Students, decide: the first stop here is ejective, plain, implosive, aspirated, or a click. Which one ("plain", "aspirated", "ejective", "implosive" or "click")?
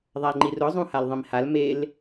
click